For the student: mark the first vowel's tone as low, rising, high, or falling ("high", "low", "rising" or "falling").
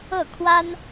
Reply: falling